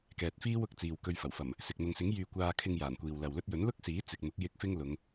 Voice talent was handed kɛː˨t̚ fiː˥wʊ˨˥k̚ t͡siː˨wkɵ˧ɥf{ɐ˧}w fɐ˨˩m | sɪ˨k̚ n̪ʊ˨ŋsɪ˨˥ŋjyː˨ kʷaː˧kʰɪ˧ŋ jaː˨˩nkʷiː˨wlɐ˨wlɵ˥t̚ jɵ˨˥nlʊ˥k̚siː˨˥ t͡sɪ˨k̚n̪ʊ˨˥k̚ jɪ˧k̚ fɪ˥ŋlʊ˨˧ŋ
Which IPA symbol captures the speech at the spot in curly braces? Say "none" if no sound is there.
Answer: ɐ˨˩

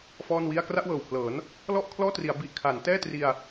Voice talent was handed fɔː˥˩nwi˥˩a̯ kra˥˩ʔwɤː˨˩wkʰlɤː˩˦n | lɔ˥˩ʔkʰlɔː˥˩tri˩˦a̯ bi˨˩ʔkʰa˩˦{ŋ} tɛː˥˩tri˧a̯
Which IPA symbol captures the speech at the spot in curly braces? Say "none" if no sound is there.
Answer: n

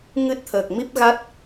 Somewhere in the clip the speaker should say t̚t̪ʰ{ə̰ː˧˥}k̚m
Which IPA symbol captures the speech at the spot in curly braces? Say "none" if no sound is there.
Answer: əː˨˩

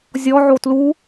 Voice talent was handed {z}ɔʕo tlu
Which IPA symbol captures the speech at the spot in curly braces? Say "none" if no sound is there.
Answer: zʲ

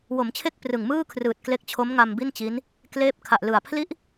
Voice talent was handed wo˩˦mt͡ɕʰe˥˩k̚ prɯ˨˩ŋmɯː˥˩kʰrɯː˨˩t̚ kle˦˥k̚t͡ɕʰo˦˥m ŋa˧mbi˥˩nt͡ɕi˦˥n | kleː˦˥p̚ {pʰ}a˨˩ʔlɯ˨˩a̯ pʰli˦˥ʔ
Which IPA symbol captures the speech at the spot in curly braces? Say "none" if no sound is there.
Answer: kʰ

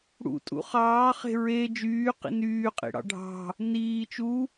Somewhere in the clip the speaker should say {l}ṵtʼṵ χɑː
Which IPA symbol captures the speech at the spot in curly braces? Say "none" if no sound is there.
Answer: ɽ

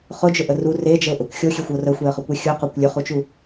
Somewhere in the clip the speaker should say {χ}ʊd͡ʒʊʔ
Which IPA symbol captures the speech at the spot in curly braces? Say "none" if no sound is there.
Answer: χ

